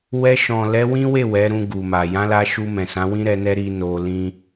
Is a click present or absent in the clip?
absent